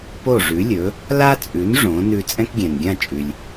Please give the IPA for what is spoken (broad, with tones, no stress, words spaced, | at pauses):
po˥˩ʐʉ˩˥lʲɵ˩˥ | la˥t͡sʼʉ˩˥n ʐõ˩˥ nʉ˧ t͡sʼɛ̃˥kɡʲɛ̃˩nɡʲã˥˩t͡ʃʼʉ˩lʲ